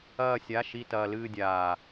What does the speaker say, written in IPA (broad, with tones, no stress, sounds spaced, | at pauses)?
ɐː˥˧ sʲ a˧˥˧ ʃ i˥˧ t ɐː˧ l ɨː˥˧ dʲ aː˨˩